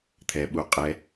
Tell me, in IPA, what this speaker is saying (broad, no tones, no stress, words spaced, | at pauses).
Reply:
t̪ʰɛ ɓu qʼɛ